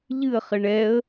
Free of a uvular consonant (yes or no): no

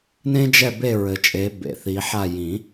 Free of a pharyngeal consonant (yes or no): no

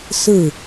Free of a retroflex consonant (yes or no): yes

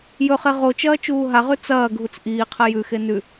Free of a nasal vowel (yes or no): yes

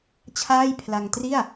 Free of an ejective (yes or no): yes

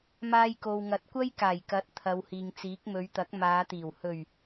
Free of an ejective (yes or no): yes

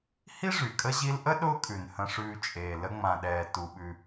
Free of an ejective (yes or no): no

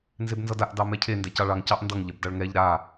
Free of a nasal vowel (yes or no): yes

